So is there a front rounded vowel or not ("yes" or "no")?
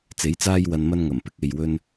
no